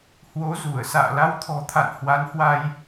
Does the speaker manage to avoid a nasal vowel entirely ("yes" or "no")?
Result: yes